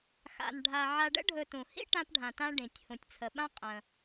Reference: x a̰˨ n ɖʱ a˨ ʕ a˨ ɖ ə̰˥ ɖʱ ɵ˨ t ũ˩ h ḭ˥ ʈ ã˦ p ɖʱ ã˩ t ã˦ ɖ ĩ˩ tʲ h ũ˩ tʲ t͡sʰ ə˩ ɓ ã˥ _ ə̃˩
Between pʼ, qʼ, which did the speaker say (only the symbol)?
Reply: qʼ